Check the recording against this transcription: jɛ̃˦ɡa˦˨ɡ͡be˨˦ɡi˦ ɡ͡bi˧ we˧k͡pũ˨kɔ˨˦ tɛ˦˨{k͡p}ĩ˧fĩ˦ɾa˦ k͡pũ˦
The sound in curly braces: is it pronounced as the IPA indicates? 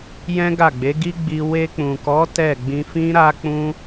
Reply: no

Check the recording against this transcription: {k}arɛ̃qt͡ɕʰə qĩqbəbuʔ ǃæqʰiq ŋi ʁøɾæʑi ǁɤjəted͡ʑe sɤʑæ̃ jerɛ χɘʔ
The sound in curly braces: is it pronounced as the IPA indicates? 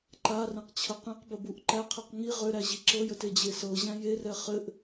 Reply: no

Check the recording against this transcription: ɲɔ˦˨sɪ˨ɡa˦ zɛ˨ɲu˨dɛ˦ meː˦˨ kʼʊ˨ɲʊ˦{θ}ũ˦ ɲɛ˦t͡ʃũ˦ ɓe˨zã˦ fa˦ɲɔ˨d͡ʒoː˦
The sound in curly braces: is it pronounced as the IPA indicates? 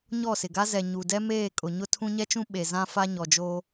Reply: no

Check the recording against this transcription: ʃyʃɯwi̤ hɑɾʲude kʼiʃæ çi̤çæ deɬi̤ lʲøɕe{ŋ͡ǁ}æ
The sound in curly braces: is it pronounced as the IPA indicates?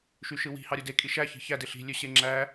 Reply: yes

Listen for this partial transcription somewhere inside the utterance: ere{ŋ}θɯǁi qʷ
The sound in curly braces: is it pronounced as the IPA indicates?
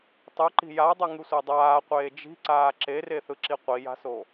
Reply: no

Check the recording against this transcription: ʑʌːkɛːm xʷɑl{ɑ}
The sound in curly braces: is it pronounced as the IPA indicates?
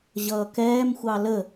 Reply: no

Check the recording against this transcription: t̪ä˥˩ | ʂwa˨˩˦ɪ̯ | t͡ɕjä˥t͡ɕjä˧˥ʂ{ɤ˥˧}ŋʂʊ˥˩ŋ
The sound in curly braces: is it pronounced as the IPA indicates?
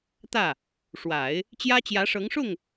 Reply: no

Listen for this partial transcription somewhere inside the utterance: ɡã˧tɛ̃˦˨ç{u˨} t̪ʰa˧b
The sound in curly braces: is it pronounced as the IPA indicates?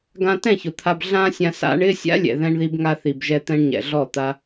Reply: no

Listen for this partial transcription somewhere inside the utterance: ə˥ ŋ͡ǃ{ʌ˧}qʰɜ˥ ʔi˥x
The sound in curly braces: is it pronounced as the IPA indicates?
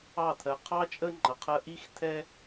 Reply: yes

